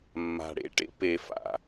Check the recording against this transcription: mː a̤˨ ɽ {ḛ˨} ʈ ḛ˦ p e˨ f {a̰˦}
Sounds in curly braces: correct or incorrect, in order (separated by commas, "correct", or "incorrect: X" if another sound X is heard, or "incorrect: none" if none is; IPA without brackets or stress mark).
incorrect: ḛ˦, incorrect: a̰˨